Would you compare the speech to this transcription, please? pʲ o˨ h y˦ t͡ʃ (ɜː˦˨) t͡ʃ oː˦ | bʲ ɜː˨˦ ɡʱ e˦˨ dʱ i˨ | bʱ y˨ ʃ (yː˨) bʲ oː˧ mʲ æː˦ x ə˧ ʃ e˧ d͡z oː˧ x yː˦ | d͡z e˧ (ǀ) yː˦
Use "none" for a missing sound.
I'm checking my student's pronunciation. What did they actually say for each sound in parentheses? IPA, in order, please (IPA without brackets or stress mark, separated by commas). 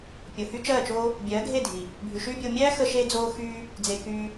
ɜː˦˨, yː˦, k